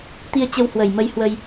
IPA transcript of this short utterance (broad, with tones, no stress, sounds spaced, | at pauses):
t̪ i˧ ə̯ t͡ɕ ə˧ w h w ə˨˩ j m ə˧ j h w ə˧ j